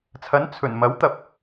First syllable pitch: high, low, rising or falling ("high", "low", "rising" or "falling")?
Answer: rising